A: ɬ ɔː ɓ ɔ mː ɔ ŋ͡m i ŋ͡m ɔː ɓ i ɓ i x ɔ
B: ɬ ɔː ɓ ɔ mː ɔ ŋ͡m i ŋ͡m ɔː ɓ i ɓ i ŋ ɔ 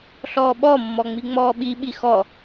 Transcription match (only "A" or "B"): A